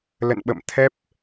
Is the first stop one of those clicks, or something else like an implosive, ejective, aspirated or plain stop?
implosive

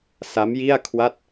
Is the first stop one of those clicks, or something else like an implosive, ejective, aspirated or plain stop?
aspirated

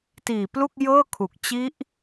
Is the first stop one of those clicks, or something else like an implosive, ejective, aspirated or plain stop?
plain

